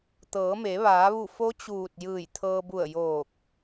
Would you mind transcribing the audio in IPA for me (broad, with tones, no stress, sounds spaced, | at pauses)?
t̪ ɤː˩˧ m e˩˧ ʋ aː˩˧ ʋ u˧˩ f o˧˥ t͡ɕ uː˧˩ t̚ j ɯː˧˩ j t̪ʰ ɤː˧ b u˧˩ ə̯ j oː˧˩ k̚